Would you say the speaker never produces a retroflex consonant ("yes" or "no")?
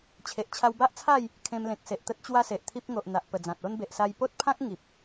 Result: yes